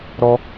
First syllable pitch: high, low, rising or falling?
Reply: high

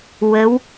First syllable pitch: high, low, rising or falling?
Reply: rising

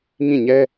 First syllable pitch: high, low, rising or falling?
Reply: falling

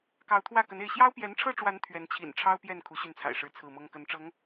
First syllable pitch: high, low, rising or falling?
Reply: rising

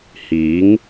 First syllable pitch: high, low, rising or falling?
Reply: rising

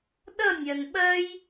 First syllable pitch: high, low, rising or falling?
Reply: falling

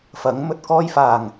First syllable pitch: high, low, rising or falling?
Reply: rising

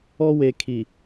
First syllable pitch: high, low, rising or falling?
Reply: high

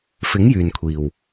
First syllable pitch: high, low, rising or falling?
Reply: rising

